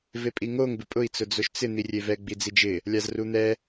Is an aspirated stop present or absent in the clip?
absent